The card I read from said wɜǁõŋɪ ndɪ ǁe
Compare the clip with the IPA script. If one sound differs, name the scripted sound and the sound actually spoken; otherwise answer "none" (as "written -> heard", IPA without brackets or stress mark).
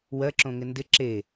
none